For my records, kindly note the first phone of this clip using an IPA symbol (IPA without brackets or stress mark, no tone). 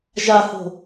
ʒ